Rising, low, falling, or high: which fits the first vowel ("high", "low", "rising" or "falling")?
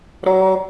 high